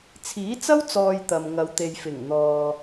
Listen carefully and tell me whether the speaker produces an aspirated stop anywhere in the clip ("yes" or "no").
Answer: yes